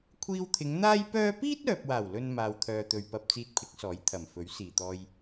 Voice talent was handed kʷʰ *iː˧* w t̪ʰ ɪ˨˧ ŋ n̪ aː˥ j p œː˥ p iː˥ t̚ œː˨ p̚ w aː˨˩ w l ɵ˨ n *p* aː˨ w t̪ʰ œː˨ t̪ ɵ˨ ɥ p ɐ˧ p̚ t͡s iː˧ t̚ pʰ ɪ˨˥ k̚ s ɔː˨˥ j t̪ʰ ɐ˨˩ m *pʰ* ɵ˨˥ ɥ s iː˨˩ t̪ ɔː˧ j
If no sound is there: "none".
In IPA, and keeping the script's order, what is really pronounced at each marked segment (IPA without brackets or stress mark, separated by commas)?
iː˧, m, f